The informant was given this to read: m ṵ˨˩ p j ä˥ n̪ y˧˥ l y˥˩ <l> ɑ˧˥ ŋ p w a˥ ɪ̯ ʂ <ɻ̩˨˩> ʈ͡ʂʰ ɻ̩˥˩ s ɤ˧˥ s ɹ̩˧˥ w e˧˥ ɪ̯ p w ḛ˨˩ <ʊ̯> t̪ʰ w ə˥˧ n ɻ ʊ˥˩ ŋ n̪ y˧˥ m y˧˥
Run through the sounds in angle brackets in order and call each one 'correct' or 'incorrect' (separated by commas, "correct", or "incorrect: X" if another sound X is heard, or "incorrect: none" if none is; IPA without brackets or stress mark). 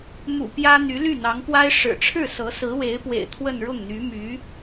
incorrect: n̪, correct, incorrect: ɪ̯